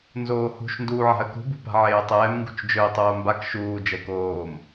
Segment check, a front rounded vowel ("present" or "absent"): absent